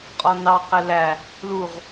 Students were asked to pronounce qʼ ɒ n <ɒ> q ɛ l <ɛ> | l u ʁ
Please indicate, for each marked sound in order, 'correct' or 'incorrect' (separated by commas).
incorrect, incorrect